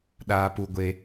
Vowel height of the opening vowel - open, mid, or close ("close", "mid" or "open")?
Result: open